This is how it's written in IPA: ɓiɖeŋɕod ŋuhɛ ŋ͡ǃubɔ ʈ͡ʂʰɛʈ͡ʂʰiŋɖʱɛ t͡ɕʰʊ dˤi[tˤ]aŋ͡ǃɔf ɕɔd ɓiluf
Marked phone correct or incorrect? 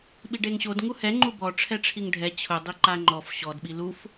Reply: incorrect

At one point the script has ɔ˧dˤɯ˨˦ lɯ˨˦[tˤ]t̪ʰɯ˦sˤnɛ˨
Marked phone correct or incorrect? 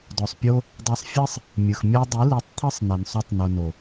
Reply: correct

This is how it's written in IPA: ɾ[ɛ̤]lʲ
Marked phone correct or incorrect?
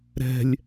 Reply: correct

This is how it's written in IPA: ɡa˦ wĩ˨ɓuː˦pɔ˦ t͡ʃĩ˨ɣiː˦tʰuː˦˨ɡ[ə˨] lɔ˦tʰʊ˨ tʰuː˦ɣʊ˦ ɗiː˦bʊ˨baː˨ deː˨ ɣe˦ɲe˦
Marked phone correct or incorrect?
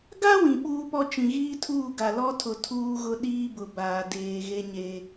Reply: incorrect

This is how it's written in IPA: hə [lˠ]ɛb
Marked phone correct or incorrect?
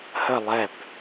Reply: correct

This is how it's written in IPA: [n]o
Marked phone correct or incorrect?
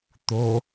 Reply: incorrect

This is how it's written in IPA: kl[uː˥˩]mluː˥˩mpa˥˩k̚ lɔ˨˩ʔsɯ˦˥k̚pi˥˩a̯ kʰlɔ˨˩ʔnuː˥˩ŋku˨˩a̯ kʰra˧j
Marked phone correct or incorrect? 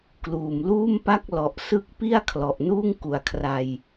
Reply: incorrect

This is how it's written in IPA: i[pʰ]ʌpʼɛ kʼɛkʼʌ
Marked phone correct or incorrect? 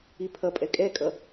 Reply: correct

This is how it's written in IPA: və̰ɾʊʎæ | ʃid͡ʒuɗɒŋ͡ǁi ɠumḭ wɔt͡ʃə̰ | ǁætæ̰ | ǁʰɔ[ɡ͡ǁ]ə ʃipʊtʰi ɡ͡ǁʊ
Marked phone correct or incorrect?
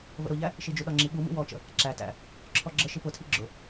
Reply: correct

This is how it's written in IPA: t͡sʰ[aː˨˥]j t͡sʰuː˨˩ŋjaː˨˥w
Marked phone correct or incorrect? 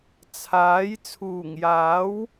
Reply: correct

